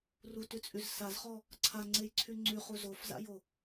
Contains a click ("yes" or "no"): yes